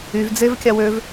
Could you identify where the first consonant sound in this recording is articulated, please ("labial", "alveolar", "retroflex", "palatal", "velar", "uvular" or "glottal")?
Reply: labial